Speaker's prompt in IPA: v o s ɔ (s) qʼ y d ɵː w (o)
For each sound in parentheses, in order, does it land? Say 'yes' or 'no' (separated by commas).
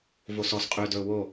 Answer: yes, yes